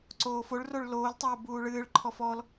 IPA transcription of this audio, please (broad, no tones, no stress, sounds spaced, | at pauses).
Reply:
ǀ oː f o ɭ r o ɭ l oː l tˤ oː b uː ɭ ɨː ɭ ǃʰ ɔ f ɔ l